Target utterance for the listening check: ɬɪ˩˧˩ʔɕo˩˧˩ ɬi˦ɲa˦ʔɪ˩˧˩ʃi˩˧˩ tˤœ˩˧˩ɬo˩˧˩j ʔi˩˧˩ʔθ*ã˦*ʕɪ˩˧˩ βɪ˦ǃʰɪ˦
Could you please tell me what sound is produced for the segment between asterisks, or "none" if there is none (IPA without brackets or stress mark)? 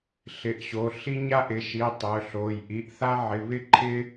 a˦